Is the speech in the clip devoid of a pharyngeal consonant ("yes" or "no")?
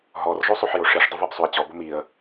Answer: no